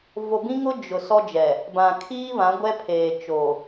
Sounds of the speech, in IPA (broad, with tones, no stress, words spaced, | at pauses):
vo˨bĩ˦ŋʊ˦ d͡ʒʊ˨ sɔ˦d͡ʒɛ˨ | bã˨kʰiː˦ βã˨˦ɡʷɛ˦pʰeː˨ t͡ʃo˨